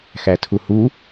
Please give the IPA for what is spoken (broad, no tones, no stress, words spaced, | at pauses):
xætʰuhu